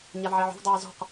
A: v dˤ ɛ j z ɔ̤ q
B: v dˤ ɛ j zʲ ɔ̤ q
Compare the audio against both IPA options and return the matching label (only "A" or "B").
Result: A